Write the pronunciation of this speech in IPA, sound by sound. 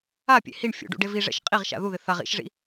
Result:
a pʲ ḛ h i ɳ fʲ ṵ ɖ ṵ ɖ e v i ʐ ɛ̰ ʃ qʼ i ʁ ʃ a̰ ð u ð ɪ θ a ʁ ḭ ʃ ʐ ḭ

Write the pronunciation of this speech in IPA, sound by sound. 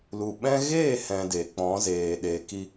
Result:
l u˨ ɓ ɛ̃˦ ɣ eː˦˨ h ɛ̃˨ d e˨ k͡p ɔ̃˨˦ z eː˨ ɗ e˨ k i˧

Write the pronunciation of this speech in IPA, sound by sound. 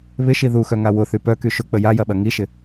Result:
β ɪ ʃ i ð u x œ ŋ a w ʊ θ y p œ k y ʃ ʊ k͡p ə j a j ɐ ɓ ɐ ŋ i ʃ ɪ

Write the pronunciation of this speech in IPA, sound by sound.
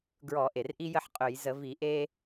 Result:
ɡ ɹ ɔ˧˩˧ ʔ e˩ r ʔ i˦ j ə˦ ħ qʼ ɵ˧˩˧ j z ə˧˩˧ v i˧˩˧ ʔ e˦

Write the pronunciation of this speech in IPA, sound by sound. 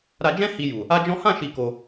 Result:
ɾ a˧ d͡ʒ ɛ̃˦ h i˧ j u˨ | a˦ d͡ʒ ɔ̃˦ h ã˦˨ ʃ i˧ k o˧

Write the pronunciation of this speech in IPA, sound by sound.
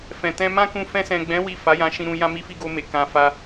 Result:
f ɛ̃˨ t ɛ̃˧ m ã˦ k ũ˧ f ɛ̃˧ s ɛ̃˨ ɡ͡b ɛ̃˨˦ w i˦˨ f a˨˦ j ã˧ ʃ ĩ˧ ɾ ũ˧ j ã˧ m i˧ f i˧ ɡ o˧ m e˨ k ã˧ f a˦

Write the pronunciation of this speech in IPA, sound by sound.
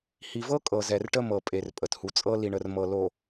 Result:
h i˨ v ɤ˦ kʼ ɤ˨ z ɛ˨ r ʈ ə˦ m ɤ˨ pʼ e˨ r pʼ ə˨ t h u˨ t͡sʼ ɤ˦ l i˨ ɳ ə˨ r m ɤ˨ l o˨

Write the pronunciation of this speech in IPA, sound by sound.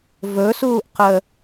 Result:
v ɵ s uː ʔ q ə

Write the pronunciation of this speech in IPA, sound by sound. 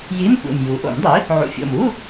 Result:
j i˧˥˧ m kʷ ḛ˨˩ m j u˩˥ ʔ o̰˨˩˦ m dˤ i˩˥ | ʕ ṵ˨˩ fʲ o̰˨˩ m u˧˥˧

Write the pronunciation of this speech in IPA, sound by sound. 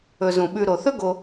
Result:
ɵ˨ z ũ˩ ɓ ʉ˨ ɾ o˩ θ ɵ˥ ɡ o˨

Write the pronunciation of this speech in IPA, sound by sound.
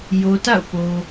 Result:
j o˨ t a̰˦˨ ʊ̯ p o˨

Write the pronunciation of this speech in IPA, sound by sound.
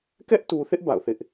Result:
k ɛ˦ ʔ t u˨ θ ɪ˦ ʔ b a̰˦˨ ʊ̯ θ ɪ˦ ʔ

